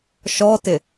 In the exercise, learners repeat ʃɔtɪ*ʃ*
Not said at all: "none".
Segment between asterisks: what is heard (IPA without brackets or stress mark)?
none